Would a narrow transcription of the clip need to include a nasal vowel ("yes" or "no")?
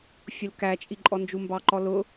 no